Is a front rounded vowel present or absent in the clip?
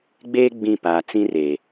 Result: absent